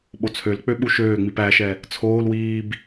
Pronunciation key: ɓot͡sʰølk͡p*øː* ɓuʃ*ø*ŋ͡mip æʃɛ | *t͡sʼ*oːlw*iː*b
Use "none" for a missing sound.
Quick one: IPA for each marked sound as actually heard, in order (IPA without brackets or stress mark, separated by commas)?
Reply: ø, øː, t͡sʰ, iː